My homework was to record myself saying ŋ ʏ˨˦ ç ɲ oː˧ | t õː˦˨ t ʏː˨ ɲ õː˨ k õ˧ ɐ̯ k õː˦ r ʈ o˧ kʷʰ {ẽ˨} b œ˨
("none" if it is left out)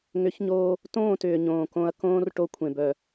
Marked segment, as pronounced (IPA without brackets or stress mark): ẽ˨